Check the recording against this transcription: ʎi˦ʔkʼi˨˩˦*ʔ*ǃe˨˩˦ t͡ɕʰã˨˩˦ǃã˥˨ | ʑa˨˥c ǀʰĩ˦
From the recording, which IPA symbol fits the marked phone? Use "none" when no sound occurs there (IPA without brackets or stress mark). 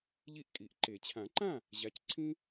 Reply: ʔ